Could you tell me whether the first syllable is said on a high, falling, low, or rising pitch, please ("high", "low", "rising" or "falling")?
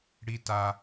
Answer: high